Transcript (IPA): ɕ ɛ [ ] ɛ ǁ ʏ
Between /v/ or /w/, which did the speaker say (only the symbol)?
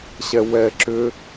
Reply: w